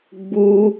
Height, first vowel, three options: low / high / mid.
high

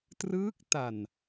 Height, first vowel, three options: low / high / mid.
high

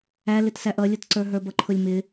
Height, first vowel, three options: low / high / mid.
low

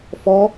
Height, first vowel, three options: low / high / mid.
mid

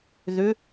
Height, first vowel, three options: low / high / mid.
high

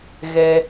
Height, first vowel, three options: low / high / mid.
mid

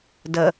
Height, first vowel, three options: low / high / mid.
mid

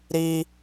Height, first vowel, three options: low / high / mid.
high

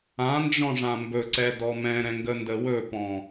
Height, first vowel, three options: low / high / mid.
low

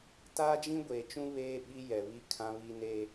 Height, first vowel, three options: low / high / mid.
low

